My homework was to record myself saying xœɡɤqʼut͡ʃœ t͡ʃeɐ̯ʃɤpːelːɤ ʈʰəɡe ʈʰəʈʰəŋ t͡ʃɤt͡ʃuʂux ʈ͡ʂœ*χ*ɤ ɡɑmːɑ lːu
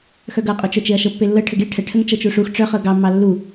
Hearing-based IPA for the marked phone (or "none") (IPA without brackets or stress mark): χ